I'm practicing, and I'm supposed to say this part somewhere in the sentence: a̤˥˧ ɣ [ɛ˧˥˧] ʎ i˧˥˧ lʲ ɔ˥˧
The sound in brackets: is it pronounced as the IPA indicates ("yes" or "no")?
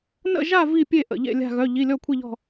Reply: no